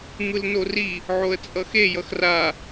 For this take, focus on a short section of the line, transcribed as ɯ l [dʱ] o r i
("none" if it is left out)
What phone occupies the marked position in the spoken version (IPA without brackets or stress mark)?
n